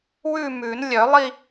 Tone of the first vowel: falling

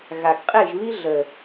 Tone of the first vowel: low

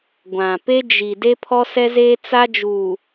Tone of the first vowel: low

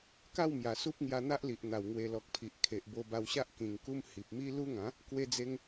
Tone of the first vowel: falling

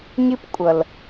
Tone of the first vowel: high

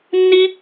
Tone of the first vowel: high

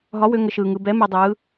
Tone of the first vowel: rising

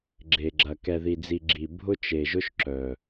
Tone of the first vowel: low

